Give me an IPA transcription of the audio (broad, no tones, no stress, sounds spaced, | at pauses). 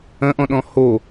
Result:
ɐ̃ ʔ ɔ̃ ɗ ɔ̃ h o